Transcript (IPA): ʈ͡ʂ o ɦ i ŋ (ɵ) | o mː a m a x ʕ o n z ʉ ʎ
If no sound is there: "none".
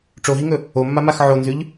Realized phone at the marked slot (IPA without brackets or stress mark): ɵ